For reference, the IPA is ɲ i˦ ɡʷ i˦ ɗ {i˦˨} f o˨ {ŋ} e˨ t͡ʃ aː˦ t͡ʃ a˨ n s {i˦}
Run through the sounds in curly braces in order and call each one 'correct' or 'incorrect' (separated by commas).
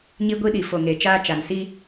incorrect, correct, correct